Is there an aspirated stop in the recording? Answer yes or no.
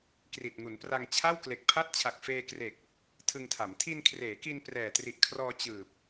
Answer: yes